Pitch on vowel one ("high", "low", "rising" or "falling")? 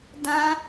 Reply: high